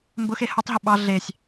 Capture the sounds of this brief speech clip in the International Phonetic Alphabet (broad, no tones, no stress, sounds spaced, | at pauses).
m b ʊ x e h ʊ tˤ ɦ ʊ ɓ ɑ ɮ e sʲ